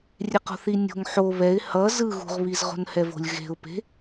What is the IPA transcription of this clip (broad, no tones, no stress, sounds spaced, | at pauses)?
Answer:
rʲ e q o̤ θ i nʲ o̤ ŋ ħ o β ɛ ɪ̯ h ʌ z ɯ ɣ ṳ ʁ β i z ʁ o̤ n h ɛ v o̤ lʲ ɣ e̤ ʊ̯ p e̤